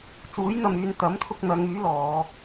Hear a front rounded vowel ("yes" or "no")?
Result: yes